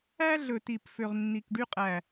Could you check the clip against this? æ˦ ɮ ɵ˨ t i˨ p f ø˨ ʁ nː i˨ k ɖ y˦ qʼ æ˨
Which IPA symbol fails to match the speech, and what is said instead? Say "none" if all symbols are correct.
none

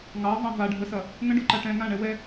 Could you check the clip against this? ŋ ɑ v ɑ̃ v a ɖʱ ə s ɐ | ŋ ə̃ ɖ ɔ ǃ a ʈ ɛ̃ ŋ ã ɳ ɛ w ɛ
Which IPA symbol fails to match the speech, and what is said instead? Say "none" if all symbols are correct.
none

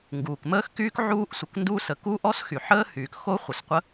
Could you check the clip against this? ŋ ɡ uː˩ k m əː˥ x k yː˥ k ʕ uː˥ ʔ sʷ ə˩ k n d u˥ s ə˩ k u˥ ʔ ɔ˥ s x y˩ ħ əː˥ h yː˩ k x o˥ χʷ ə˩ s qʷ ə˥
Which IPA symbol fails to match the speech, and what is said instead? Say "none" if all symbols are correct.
none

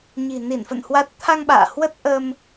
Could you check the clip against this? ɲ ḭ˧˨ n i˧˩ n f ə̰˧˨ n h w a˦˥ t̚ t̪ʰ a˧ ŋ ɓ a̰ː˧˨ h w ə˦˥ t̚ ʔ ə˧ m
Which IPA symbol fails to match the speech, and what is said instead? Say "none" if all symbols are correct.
ḭ˧˨ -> i̤˨˩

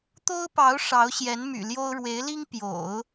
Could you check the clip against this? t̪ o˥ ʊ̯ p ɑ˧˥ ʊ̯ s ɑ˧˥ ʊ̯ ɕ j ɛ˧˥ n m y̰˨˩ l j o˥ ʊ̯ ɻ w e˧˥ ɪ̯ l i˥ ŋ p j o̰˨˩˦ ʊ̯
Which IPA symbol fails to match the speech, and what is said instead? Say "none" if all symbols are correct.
s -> ʂ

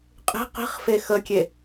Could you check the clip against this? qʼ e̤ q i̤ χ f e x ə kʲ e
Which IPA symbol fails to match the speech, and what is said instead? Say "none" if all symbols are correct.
none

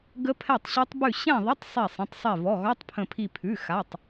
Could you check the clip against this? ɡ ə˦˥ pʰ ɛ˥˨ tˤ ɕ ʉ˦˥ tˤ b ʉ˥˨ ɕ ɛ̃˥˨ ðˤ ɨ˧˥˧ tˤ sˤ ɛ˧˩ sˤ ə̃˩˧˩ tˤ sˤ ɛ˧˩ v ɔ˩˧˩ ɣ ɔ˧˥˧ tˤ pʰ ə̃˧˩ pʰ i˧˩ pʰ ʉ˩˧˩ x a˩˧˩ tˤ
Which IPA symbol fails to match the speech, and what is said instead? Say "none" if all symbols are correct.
ɨ˧˥˧ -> ə˧˥˧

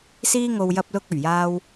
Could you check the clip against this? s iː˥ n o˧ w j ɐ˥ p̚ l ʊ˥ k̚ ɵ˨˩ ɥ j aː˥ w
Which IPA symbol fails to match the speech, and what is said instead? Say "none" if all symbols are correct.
n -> ŋ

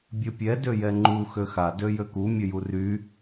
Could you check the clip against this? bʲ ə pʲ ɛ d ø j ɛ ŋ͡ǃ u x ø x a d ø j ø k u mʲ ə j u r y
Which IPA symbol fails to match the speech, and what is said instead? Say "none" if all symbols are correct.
none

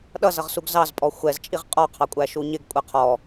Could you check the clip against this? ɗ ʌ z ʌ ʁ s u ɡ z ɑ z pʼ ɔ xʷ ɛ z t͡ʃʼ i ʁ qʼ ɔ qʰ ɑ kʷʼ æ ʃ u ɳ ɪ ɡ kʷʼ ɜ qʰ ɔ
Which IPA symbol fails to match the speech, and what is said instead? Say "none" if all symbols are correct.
ɳ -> ɲ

